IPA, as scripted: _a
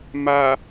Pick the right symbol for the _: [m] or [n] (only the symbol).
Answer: m